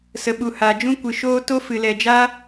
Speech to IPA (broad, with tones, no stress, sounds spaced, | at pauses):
s ə˧ ɓ u˧ h aː˧ d͡ʒ ũ˦ kʷ ɨ˧ ʃ oː˧ t o˦ f ɨ˧ l ɛ˧ d͡ʒ aː˦